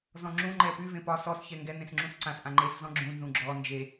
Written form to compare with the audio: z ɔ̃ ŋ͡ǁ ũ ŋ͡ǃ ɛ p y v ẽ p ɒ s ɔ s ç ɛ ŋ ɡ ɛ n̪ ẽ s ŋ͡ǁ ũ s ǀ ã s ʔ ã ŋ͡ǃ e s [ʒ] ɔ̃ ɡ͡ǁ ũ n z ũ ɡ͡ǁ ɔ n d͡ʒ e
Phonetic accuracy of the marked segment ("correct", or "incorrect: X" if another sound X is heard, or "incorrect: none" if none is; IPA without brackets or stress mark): incorrect: z